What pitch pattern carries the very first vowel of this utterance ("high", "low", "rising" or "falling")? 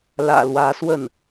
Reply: low